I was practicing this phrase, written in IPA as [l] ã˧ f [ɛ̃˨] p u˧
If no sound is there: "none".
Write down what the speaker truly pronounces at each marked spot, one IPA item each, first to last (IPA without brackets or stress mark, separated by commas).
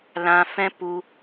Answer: l, ɛ̃˦